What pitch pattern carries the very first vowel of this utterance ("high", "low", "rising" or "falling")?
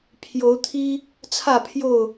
rising